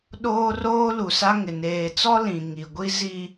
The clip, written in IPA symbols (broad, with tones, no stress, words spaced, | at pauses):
ɗoː˦roː˦ lu˨sa˦ŋɪ˨ neː˨t͡sɔ˦ lĩ˨ ŋi˨ɡʷi˦ zi˨